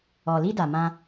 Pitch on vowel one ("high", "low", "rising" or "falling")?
low